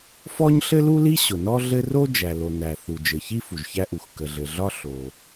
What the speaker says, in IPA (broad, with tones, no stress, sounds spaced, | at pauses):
f ɔ˥ ɲ ɬ ɘ˥ l u˥ l i˥ ɕ ʊ˩ n ɔ˥ ɮ ɘ˥ r o˥ d͡ʒ æ˩ l o˩ n æ˩ θ u˩ d͡ʒ ɘ˩ ç i˥ f u˩ ʒ ç æ˥ ʔ u˩ x k ə˩ ɮ ɘ˩ ɮ ɒ˥ ɬ o˩